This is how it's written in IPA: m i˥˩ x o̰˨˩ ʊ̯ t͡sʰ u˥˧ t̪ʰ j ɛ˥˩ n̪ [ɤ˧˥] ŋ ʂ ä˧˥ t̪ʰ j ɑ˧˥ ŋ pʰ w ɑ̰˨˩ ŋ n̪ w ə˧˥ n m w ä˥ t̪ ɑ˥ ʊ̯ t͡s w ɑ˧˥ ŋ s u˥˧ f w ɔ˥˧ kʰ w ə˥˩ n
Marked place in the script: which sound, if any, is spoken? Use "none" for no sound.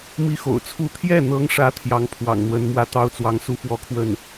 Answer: ɤ˧˥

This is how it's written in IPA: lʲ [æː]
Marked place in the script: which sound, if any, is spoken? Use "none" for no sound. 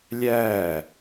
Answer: æː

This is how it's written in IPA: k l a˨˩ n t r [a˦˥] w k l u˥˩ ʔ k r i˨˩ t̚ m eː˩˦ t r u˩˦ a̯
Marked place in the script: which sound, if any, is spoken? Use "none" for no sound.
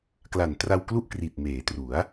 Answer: a˧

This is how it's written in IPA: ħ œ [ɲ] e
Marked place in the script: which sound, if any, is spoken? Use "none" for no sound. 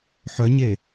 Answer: ɲ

